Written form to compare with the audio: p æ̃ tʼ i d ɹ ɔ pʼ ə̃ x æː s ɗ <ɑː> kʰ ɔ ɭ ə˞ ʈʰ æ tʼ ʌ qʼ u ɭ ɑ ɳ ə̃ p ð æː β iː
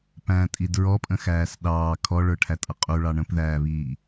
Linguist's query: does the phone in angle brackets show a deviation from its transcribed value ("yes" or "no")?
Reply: no